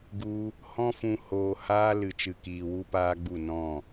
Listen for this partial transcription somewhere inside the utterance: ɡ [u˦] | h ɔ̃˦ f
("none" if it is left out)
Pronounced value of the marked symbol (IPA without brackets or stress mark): u˦